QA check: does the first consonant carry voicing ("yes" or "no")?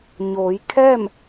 yes